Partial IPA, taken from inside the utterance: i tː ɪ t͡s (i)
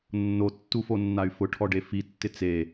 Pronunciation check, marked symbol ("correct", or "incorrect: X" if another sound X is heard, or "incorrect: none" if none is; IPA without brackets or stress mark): incorrect: e